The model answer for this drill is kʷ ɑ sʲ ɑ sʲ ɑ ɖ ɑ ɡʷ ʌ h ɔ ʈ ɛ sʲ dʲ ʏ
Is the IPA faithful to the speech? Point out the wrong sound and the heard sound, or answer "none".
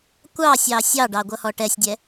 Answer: ʏ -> ɛ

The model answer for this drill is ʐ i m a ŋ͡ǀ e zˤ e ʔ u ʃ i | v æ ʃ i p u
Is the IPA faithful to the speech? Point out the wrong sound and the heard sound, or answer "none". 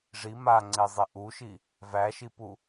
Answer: none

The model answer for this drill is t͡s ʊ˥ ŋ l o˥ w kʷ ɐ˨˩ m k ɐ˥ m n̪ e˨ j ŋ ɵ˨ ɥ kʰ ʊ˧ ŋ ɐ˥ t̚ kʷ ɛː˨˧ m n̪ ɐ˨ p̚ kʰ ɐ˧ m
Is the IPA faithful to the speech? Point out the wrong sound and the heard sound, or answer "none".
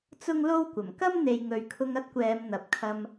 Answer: none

